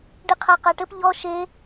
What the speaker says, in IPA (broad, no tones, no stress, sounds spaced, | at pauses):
ɖ i qʰ a q a ʈ ɘ p ʎ ɔ ʃ e